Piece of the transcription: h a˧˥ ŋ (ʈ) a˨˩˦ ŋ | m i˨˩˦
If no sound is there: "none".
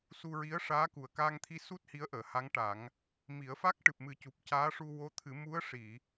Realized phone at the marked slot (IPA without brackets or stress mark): ʈ